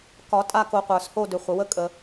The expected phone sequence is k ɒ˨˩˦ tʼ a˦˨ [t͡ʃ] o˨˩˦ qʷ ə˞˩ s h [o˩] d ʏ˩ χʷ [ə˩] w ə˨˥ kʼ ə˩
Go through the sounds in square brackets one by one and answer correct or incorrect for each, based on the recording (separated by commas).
incorrect, incorrect, correct